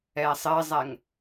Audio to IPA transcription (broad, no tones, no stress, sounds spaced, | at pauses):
ɛː sˤ ɪː zˤ ɛ ŋ